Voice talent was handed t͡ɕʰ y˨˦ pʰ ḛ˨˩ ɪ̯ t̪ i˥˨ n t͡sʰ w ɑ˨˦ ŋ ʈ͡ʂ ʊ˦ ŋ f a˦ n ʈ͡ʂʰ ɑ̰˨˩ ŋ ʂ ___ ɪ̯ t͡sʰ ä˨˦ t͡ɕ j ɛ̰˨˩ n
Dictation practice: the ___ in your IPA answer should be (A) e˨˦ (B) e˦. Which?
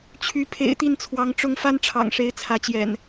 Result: A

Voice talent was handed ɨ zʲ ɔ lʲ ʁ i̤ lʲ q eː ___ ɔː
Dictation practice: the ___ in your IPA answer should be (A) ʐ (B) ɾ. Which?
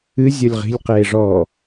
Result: A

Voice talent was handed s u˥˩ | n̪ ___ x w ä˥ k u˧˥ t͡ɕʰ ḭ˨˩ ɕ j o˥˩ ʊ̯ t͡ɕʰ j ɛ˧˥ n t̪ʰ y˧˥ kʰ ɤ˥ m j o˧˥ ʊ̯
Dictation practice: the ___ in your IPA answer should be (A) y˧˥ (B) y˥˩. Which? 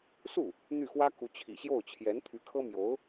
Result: B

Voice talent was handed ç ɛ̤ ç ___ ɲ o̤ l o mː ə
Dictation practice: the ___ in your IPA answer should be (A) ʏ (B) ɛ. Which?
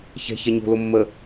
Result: B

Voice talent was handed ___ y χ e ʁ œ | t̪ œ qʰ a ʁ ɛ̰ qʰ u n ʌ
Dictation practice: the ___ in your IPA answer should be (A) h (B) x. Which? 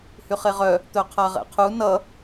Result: A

